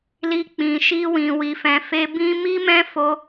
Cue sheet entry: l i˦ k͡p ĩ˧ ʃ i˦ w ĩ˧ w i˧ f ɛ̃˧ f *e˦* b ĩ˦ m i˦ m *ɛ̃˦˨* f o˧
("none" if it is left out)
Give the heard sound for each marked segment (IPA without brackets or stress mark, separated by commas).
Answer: e˦, ɛ̃˦